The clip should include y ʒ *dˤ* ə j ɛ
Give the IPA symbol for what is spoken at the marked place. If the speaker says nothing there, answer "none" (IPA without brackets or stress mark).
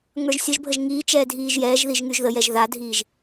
ð